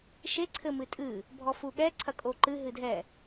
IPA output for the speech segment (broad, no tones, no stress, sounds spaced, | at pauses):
ʃ e ǀʰ ɘ m ɨ tʼ ɨ | bʱ ɔ f u ɠ ɛ ǀʰ ɐ kʼ o ǃ ɨ ɦ ɨ dʱ ɛ